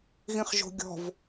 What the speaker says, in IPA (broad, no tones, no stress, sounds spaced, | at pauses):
ɣ ĩ χ ʒ o̤ ɡʲ ɔ̤ v